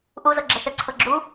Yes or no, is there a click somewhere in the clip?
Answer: yes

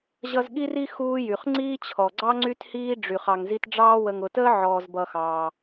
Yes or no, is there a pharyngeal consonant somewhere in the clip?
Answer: yes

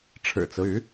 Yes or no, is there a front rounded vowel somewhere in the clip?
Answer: yes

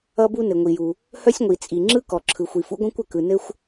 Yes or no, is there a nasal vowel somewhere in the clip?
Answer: yes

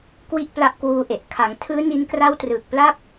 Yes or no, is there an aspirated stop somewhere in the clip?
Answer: yes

